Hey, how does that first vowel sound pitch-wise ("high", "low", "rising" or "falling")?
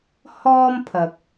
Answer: high